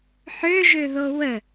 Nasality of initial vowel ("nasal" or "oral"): oral